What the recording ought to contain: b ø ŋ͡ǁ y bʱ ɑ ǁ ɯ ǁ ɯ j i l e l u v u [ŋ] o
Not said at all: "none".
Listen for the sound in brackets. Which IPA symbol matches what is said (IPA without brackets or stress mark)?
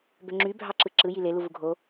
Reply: ɡʱ